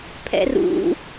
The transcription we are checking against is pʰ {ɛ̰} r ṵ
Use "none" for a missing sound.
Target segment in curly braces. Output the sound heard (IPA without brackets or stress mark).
ɛ̰